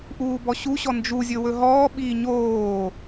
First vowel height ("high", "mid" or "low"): high